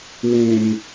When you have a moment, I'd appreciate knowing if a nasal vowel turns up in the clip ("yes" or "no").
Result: yes